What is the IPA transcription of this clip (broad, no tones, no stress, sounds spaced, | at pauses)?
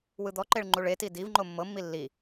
w ɯ d̪ ɔ ǃ e ɭ ŋ͡ǃ u ɭ e t i d i v ŋ͡ǃ o mː ɤ mː i lː i